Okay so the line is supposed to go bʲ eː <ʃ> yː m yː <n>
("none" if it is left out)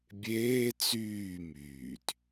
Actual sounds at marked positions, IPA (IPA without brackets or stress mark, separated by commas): t͡s, t